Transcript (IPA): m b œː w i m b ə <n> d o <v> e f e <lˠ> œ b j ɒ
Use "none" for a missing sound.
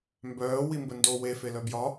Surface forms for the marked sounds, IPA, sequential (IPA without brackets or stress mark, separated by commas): n, w, l